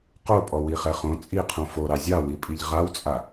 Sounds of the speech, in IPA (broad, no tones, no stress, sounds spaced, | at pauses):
q o pʼ ɔ w i χ ɛ χ õ t͡sʼ i qʰ õ f o ɾ ɑ zʲ ɑ w i pʼ i ʎ ʁ a w t͡sʼ a